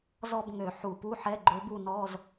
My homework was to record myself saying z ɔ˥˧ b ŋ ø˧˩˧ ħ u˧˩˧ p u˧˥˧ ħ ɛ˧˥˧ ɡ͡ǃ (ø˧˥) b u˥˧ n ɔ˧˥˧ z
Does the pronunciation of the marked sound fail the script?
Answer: no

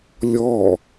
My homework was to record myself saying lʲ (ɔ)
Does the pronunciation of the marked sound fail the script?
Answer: no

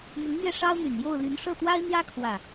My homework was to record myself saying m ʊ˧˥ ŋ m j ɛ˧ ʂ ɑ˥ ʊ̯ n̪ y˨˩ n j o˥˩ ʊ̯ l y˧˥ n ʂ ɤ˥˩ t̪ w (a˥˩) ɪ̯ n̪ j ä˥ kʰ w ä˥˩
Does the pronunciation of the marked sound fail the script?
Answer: yes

